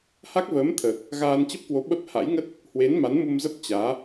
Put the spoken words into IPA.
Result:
h a˦˥ k̚ v əː˨˦ m t̪ʰ əː˨˩ k̚ | ɣ aː˧ n t͡ɕ ə˦˥ p̚ k w o˨˦ ɓ ə˦˥ p̚ h a̰˧˥ j ŋ ə˦˥ t̚ | h w e˨˦ n m a˨˦ n m u˧ m z ə˦˥ p̚ t͡ɕ aː˨˦

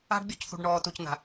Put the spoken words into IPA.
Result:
a̤˦ ɖ bʲ ɔ˦ c θ ṳ˨ ɖ ɳ ɔː˨ t u˨ c n̪ a̤˨

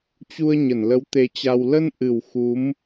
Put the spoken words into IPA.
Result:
t͡ɕ u˧ ə̯ ɲ ə˧˩ n l ə˨˦ w t̪ e˧ t͡ɕ a˧ w l ə˧ n ʔ ɨ˨˩ w x u˨˦ m

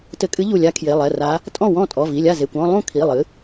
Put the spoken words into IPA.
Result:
t ɘ˧˩ kʼ ɨ˧˥ ʎ u˧˩ lʲ a˧˥ kʰ j e˩˧˩ lˠ ɛ˩˧˩ r a˧˥ | tʼ ɔ̃˥˩ w ɔ̃˥˩ tʼ ɔ˩˧˩ v i˩˧˩ lʲ a˥˩ z e˩˧˩ kʷ ɔ̃˥˧ lˠ ũ˥˩ kʰ i˩˧˩ lˠ ɨ˩˥

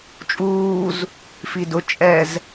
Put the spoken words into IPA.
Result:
t͡ʃʼ uː z | f i d ʊ t͡ʃʼ ɛ z

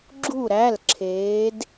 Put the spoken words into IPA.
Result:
ɡ͡ǁ u˧˩ ɾ æ˩˧˩ l ǁʰ eː˩˧ d

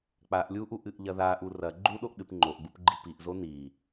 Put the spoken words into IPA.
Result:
k͡p a ʔ lʲ u ʔ u ʔ ɨ ʔ ʎ ɐ ð a ʔ u r ɐ ɡ͡ǃ u ɗ o ʔ ɗ ɨ p ŋ͡ǃ o ʔ ɡ͡b u p ɡ͡ǃ i p i ʔ z o n i

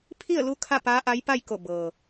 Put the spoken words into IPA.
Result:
pʰ i˥˨ ə̯ l u˧˥ kʰ a˥˨ p aː˧˥ ʔ a˧˥ j p a˥˨ j k o˧˩ b ɤː˩

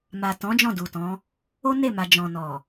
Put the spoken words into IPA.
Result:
m a˨ t ɔ̃˨˦ d͡ʒ ɔ̃˦˨ d u˨ t ɔ̃˨˦ | o˦ n e˦˨ m a˨ d͡ʒ ɔ̃˨ n ɔ˨

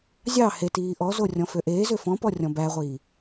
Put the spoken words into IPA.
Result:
zʲ ɑ h e t iː ʔ ɔ z o rʲ ɔ̃ f ø ʔ eː z ø f ɔ̃ p ɔ rʲ ɔ̃ b æ ʁʷ iː

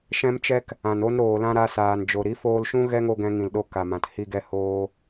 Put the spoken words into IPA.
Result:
ʃ ɛ̃˦ m t͡ʃ ɛ˦ k | ã˨ n o˦ n ɾ oː˨ l ã˦ ɾ a˧ s aː˨ n d͡ʒ o˨ ɾ i˨˦ f oː˧ l ʃ ũ˦ ɣ ɛ˦ ŋ o˧ ɡ ɛ̃˧ ŋ ĩ˨ l ɗ o˧ k a˨ m ã˨ t h i˧ ɡ ɛ˧ h oː˧

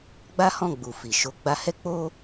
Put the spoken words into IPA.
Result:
ɡ͡b a˦ h ɔ̃˦˨ ɡ͡b u˨ f i˨ ʃ o˧ ɡ͡b a˧ h ɛ˦ k͡p o˦

